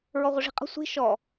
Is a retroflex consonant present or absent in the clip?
present